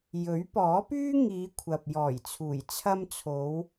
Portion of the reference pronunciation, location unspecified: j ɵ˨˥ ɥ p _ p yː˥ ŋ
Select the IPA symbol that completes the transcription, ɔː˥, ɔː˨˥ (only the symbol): ɔː˨˥